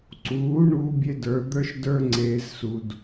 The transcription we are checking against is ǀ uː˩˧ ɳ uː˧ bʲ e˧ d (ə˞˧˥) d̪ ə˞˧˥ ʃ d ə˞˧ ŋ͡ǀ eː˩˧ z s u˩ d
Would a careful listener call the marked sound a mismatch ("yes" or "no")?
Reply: yes